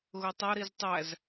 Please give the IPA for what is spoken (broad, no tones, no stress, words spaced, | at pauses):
ɣʊtˤʌ ɾiztˤæz